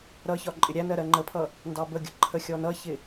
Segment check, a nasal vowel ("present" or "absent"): absent